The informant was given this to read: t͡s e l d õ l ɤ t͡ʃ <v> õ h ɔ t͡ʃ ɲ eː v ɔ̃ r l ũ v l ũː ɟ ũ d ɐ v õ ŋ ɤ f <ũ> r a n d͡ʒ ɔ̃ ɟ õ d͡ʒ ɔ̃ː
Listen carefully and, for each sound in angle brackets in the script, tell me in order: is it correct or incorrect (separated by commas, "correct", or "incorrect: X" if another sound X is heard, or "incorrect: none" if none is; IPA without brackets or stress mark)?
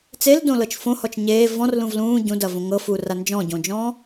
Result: incorrect: f, incorrect: u